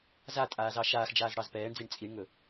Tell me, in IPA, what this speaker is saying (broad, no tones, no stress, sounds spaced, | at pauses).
z a tʼ aː z ɑ ʃ aː x d͡ʒ aː z ɽ ɑ z p ɛː ɳ d͡z i ɳ t͡sʼ i ɳ ŋ ɵ